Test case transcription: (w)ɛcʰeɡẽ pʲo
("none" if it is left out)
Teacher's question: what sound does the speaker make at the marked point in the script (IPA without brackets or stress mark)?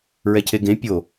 ɹ